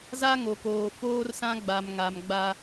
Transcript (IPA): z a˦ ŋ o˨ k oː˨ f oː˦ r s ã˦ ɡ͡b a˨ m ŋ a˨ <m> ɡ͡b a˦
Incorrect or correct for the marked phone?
correct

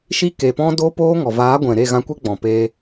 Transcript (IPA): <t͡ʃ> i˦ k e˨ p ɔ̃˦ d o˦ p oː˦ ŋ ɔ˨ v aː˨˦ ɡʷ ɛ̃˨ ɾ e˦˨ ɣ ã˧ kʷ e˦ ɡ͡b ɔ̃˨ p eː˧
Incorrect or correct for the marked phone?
incorrect: ʃ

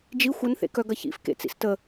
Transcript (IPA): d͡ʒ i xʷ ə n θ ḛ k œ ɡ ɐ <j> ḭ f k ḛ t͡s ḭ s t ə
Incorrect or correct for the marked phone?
incorrect: ç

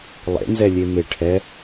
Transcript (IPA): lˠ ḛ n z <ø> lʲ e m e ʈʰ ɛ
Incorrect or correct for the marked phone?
incorrect: ɛ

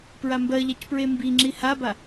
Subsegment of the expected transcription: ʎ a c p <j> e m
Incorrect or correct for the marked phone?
incorrect: ɹ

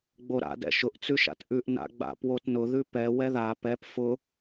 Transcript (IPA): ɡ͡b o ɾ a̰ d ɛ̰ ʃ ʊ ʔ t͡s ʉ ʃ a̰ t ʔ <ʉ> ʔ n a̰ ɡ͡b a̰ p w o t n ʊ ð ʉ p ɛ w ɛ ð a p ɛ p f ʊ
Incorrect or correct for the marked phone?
correct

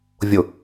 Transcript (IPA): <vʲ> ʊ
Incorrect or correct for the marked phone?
correct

